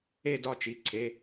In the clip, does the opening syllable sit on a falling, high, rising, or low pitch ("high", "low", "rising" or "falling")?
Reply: falling